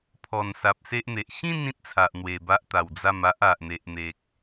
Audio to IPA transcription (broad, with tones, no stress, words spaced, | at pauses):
pʰɔ˨˩nsa˨p̚ se˦ʔn̪e˨ʔ ɕĩ˥˧n ĩ˦t̚t͡sʰa˨ʔ n̪we˨˩ba˦ʔt̪a˨˩w d͡za˥˧m a˦ʔa˨ʔ n̪e˨ʔn̪e˨k̚